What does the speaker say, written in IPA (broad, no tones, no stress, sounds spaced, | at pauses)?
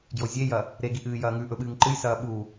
ɡ j o zʲ e j ɐ | ɾ e ɡ i ʔ ɨː j ɐː ŋ ʉ ʔ ɵ ɓ ɨː ŋ ǃ ɨ j s ɐː ɓ u